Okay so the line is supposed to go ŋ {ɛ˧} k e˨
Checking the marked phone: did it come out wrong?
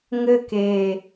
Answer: yes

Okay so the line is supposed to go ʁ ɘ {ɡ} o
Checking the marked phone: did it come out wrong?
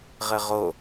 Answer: yes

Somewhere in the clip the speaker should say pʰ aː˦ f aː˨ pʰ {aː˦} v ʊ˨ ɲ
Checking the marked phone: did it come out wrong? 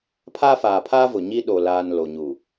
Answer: no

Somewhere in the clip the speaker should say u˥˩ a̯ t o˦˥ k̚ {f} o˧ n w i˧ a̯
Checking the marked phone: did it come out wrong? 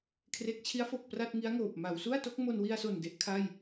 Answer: yes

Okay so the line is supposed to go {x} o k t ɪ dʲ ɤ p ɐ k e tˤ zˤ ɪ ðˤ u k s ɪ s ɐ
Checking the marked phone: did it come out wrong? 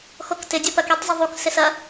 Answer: no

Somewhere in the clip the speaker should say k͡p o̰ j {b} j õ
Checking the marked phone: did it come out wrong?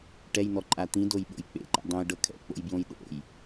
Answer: no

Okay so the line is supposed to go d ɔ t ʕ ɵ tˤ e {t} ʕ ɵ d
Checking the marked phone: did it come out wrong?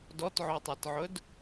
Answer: no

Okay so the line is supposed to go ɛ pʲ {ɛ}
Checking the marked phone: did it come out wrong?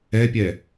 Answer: no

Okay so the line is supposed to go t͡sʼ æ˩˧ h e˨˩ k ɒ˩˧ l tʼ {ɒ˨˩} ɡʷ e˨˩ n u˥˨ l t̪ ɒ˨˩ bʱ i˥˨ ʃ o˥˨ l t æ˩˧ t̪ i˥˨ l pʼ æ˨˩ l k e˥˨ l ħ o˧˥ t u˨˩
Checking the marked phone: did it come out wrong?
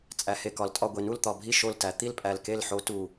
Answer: yes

